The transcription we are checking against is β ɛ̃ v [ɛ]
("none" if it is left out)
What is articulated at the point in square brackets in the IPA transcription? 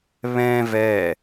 ɛ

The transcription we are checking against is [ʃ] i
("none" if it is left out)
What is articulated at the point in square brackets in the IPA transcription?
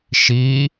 ʃ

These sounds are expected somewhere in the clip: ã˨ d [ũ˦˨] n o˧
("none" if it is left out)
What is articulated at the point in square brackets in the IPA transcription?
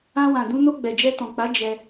ũ˧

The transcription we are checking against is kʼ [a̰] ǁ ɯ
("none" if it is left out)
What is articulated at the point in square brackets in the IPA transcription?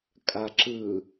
a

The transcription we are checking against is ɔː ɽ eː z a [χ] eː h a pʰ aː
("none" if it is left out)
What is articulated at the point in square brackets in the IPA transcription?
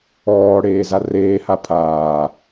r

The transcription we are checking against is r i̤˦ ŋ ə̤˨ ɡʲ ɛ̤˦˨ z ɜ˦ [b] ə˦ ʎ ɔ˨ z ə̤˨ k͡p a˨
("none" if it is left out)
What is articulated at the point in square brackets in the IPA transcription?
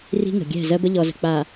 b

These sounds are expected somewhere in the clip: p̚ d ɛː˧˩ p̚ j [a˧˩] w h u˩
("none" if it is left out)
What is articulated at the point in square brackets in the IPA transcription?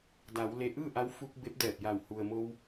a˧˩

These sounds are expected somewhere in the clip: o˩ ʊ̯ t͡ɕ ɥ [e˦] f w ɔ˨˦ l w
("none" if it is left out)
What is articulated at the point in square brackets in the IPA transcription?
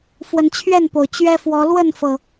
ɛ˦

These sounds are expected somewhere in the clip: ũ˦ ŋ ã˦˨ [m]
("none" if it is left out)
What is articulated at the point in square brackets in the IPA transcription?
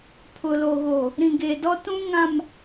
m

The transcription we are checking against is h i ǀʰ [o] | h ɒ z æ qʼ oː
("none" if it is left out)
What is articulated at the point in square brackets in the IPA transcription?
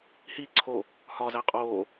o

